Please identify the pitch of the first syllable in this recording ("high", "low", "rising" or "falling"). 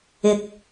low